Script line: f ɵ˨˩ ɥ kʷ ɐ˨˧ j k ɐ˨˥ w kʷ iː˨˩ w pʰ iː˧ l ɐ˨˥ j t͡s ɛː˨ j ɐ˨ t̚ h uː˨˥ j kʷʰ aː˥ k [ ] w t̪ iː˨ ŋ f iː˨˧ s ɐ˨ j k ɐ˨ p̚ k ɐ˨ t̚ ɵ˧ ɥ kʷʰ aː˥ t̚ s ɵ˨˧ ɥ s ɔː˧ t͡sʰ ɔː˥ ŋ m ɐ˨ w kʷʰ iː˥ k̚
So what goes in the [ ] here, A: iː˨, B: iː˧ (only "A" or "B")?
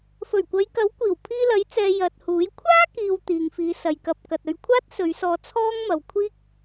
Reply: A